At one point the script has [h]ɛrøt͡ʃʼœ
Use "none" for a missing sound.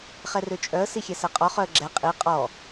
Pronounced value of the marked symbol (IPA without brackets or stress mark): χ